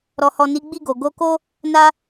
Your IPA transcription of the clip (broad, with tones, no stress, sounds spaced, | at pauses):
ɾ ɔ˨ h ɔ˨ n i˨˦ ɡ͡b i˦˨ ɡ o˨ ɡ o˧ k o˦ | n a˧